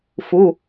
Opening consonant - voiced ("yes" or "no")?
no